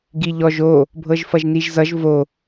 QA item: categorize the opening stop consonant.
plain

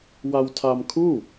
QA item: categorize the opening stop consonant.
aspirated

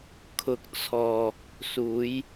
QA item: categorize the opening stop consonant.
aspirated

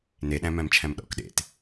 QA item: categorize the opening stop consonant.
implosive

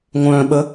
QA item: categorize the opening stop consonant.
implosive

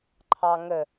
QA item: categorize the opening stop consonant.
click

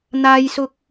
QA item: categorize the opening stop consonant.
plain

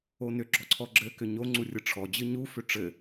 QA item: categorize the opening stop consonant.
click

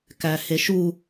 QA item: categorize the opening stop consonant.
plain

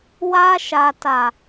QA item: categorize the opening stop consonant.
plain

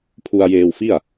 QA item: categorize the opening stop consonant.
aspirated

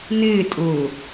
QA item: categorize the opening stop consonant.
ejective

